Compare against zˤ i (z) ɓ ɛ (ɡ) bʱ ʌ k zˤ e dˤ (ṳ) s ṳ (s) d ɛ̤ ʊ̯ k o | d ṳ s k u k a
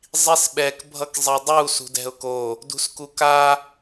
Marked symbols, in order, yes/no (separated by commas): no, no, no, no